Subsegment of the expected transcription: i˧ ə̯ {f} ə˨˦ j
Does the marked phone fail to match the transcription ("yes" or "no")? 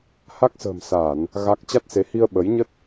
yes